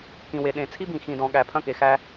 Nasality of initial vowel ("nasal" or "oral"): nasal